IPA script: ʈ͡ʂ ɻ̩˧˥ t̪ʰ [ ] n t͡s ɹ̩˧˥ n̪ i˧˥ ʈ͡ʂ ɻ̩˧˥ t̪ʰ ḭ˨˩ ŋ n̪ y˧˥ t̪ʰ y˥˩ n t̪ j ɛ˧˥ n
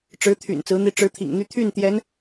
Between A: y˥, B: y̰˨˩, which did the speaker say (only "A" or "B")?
B